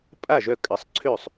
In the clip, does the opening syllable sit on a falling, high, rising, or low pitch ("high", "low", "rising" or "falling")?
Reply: falling